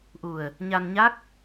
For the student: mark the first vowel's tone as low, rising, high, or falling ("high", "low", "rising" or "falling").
low